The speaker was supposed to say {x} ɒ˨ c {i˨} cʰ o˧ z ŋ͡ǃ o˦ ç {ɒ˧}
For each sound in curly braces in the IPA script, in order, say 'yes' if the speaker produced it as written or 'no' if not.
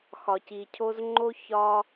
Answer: yes, yes, yes

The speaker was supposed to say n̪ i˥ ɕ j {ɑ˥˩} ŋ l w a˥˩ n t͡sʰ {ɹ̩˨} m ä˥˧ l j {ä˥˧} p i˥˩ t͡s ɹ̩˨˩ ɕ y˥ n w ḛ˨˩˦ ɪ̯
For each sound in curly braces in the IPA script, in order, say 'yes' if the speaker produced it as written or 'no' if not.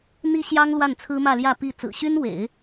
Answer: no, no, yes

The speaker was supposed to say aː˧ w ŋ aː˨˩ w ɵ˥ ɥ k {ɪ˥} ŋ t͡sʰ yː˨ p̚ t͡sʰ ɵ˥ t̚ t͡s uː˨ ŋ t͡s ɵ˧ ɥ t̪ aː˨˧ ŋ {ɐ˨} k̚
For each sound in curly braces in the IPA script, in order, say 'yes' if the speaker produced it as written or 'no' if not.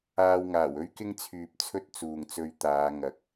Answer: yes, yes

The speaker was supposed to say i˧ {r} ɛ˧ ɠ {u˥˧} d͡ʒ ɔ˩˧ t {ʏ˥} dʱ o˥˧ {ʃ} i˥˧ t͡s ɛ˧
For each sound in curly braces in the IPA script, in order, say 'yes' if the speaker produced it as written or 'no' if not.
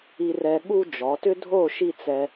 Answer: yes, no, yes, yes

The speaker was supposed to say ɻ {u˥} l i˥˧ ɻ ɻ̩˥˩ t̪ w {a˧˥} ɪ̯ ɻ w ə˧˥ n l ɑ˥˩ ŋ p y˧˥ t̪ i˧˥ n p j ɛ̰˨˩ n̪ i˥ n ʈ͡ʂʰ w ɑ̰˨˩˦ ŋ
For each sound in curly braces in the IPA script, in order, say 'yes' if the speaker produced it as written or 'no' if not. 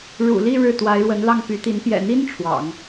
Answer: no, yes

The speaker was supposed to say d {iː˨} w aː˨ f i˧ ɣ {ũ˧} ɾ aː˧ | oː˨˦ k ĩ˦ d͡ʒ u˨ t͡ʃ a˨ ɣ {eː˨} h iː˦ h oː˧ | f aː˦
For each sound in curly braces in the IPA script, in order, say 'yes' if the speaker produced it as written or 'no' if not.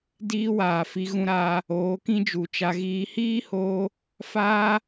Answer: no, yes, no

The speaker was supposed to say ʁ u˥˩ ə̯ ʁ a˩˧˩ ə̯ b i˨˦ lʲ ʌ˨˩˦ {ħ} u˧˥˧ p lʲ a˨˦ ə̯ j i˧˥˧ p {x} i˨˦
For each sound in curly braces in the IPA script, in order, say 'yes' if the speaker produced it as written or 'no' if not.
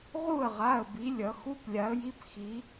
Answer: no, yes

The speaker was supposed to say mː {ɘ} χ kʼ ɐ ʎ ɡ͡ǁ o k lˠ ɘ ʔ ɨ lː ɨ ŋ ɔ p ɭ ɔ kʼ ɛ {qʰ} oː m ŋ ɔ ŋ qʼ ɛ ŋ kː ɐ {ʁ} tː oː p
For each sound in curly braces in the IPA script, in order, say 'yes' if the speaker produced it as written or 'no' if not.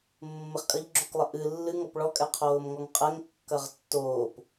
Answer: yes, yes, yes

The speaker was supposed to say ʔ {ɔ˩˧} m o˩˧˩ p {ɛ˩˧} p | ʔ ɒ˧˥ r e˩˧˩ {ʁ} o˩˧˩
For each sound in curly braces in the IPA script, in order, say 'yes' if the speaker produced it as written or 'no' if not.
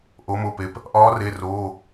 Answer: no, no, no

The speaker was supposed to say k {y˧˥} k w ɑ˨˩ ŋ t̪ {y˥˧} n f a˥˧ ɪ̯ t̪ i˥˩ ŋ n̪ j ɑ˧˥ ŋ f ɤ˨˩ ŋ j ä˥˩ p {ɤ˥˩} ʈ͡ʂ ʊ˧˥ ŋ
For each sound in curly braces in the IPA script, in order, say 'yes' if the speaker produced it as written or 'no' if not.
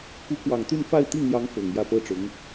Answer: no, yes, no

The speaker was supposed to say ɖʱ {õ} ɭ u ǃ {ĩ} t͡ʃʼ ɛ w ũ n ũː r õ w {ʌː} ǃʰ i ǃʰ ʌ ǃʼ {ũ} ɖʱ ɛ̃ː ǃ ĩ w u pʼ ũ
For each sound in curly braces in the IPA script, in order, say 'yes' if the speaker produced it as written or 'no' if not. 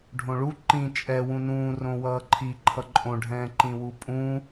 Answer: yes, yes, yes, no

